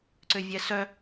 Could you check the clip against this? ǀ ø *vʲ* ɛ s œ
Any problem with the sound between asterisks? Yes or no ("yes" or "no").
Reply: no